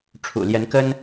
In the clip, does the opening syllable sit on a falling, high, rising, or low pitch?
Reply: low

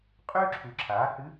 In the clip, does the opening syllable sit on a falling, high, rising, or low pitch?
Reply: high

